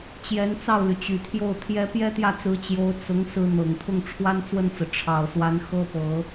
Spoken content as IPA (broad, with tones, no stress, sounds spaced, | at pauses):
t͡ɕ j ɛ˧˥ n t͡s ɑ˥˩ ʊ̯ l y˩ t͡ɕ y˨˩ t̪ʰ j o˥˩ ʊ̯ t̪ʰ j ɛ˥ p j ɛ˥ t̪ j ä˥˩ t͡s ɹ̩˧˥ t͡ɕ j o˧˥ ʊ̯ t͡s ʊ˧˥ ŋ s ɹ̩˥ n̪ ɤ˨˩ ŋ t̪ʰ ʊ˥˩ ŋ ʈ͡ʂʰ w a˥ n t͡s w ə˥˩ n t͡s ɹ̩˩ ʈ͡ʂʰ ɑ˨˩ ʊ̯ s w a˧˥ n x ɤ˥ p ɤ˧˥